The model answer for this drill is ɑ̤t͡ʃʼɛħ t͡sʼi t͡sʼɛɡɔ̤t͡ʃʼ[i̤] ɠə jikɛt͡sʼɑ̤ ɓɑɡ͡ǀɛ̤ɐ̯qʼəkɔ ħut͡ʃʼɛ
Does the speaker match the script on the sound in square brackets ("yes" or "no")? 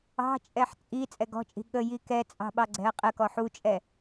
yes